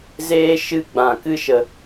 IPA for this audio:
z eː˦ ʃ ɨ˦ ɡ͡b ã˧ k ɨ˦ ʃ ə˧

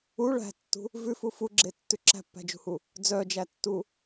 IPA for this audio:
u ɭ æ̤ tː ṳ | v ʉ f u f u ɡ͡ǁ e tː ʉ ǁ æ̤ pː æ̤ d͡ʒ ṳ h u | d͡z œ d͡ʒ æ tː u

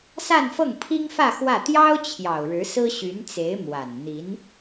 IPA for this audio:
s a˥˧ n f ɤ˥˩ ŋ pʰ i˥ ŋ f ä˥˧ x w ä˥˩ t̪ j ɑ˥ ʊ̯ t͡ɕʰ j ɑ˨˩ ʊ̯ ɻ ɻ̩˧˥ s ɹ̩˥ ɕ y˧˥ n t͡s e˧˥ ɪ̯ m w a˨˩ n n̪ i˧˥ n

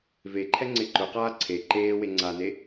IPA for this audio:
v e ǃʰ ɛ ŋ͡ǀ ɪ ǃ ʊ q aː ǀʰ e ǃ eː w e ŋ͡ǀ a n e

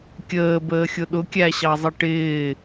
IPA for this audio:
kʲ əː b əː xʲ ʊ ɗ ʊ kʲ æ ɕ ɑ zˤ ə ʈ ɪː

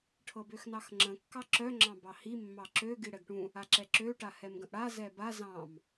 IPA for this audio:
ʈʰ ɤ b ø x n ɑ x ŋ͡ǁ ə̃ kː ɑ ǁ œ ŋ͡ǁ ɑ̃ b ɑ h i mː ɑ ǁ ø ɡ i ɽ ɛ ɡ ʈ ũ | a ǁ ɛ ǁ ø ʈ a h ɛ m ɡ ə̃ ʔ ɽ a z ɛ b a z ɑ̃ m

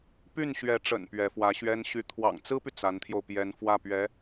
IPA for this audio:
p y˥˩ n ɕ ɥ ɛ˧˥ ʈ͡ʂ ə̰˨˩ n p ɥ ɛ˧˥ f w ä˧˥ ɕ ɥ ɛ˥ n ɕ y˥˩ t̪ʰ w ɑ̰˨˩ ŋ t͡s ɹ̩˥ p y˨ t͡s a˧˥ n t̪ʰ j o˧ ʊ̯ p j ɛ˧˥ n f w ä˥˩ p ɥ ɛ˧˥

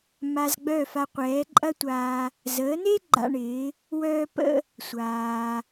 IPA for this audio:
m a˧ z ɡ͡b œ˥˩ f a˧ qʷ ɛː˩˥ ǃʼ ɐ˥ tʷ aː˧ | z əː˩˥ n e˥ ɡ͡ǃ a̰˧ ɳ ɪː˩˥ | w œː˥ p ə̰˥ | sʷ aː˩

